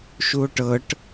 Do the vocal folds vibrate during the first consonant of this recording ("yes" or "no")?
no